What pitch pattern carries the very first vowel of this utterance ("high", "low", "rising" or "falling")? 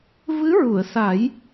rising